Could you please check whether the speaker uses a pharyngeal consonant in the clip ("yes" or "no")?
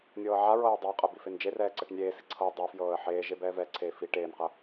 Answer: yes